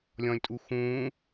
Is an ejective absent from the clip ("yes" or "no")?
no